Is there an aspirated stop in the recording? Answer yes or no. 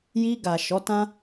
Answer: no